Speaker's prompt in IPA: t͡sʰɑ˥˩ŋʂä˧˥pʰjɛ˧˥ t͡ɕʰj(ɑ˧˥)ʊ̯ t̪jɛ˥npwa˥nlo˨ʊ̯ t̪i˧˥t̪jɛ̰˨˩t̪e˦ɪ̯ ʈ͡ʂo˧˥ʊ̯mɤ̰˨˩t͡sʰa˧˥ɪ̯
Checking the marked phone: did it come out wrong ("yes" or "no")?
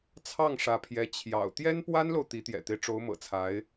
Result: yes